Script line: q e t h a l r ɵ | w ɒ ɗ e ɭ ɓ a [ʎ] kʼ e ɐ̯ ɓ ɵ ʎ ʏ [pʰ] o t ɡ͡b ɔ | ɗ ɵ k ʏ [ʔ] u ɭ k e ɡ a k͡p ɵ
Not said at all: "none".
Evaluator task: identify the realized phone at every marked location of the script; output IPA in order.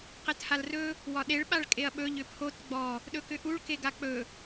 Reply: ɭ, pʰ, ʔ

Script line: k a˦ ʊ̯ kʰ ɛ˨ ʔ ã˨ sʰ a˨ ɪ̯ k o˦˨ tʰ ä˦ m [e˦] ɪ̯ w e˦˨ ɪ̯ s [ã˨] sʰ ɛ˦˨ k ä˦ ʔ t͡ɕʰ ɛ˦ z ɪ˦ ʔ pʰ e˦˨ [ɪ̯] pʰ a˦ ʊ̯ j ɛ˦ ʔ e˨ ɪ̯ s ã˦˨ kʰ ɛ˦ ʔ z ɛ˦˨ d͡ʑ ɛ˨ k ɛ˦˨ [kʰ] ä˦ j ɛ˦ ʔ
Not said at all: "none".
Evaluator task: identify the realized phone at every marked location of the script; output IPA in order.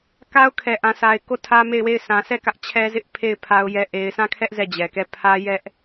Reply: e˦˨, ã˨, ɪ̯, pʰ

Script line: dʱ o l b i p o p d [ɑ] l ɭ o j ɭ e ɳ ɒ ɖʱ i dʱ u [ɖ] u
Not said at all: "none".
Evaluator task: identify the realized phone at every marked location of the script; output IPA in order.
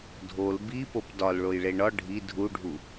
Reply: ɒ, ɖʱ

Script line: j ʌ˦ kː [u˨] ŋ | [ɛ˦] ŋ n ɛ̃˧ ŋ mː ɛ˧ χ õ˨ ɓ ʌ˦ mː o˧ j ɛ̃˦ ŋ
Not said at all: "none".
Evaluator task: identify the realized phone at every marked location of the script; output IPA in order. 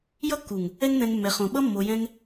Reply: u˨, ɛ˦

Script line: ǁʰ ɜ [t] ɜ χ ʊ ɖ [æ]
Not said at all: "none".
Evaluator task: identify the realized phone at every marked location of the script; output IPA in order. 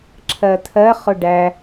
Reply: t̪ʰ, æ

